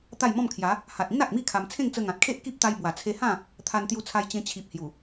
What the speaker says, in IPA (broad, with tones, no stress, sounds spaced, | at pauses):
t̪ a˥˧ j m ɔ̃˥˧ m kʰ j a˨˦ | h a˨ t̚ ĩ˦ n a˨ k̚ m i˥˧ kʰ a˧ m t͡sʰ ẽ˥˧ ŋ t͡s ə˧ ŋ ã˨ t̚ kʰ e˦ ʔ k i˦ p̚ t̪ a˧ j b w a˨˩ t͡sʰ e˧ h ã˥˧ | t̪ʰ a˧ n t̪ j u˧ t͡sʰ a˧ j t͡ɕ ẽ˧ t͡ɕʰ i˨ p̚ h j u˨˩